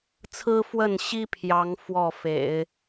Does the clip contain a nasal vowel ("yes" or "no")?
no